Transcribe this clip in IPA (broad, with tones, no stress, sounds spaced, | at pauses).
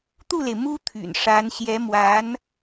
t̪ u˥˩ l e˩ ɪ̯ m u˥ t̪ʰ y̰˨˩ n ʂ a˧˥ n ɕ j ɛ˧˥ m w a˧˥ n